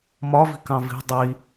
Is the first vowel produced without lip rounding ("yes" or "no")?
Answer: no